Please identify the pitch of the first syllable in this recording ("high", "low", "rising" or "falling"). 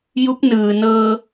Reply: rising